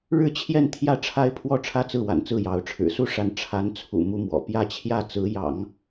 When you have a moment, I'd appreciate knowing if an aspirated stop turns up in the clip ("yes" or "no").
yes